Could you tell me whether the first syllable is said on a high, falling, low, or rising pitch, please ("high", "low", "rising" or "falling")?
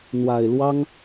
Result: low